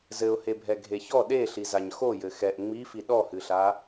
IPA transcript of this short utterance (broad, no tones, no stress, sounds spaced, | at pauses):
z ɘ ʊ̯ h e bʱ ɛ ɡʱ e ç ɔ ɗ e ɬ i z a ɲ x o j ɘ x ɛ ʔ ŋ͡m i f i ɗ ɔ h ɨ ɬ a